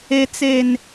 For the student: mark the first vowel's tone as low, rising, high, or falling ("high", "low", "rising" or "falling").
low